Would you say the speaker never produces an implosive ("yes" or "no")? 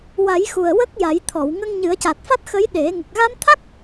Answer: no